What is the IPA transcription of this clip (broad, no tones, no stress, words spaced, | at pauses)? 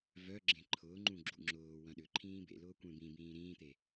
vœɡ͡ǁẽ ǃʰʊːŋ͡ǃũ ɡ͡ǁṵŋ͡ǁʊːwɐ̃ ɗʏ ǃʰĩːbḛlʊː kʷẽbĩbĩː ɾĩːt̪e